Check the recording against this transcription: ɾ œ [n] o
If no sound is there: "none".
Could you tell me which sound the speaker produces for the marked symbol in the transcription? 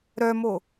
m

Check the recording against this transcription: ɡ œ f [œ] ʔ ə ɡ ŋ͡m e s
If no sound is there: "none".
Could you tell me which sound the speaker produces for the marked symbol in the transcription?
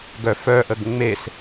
œ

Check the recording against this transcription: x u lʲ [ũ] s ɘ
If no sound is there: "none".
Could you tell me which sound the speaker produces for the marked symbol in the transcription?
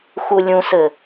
ũ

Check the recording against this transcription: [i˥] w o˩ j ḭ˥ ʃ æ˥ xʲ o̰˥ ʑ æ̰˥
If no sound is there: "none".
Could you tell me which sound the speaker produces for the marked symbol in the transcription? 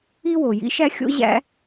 i˥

